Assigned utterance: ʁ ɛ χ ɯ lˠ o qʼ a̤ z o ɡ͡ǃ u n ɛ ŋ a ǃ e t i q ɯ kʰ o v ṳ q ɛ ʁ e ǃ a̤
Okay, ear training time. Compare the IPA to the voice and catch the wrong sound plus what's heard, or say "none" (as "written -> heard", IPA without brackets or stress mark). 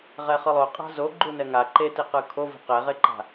none